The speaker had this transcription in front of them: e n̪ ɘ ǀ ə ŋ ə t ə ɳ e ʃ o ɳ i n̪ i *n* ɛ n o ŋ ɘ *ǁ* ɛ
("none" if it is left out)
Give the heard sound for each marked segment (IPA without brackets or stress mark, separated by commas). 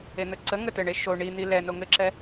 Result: l, ǁ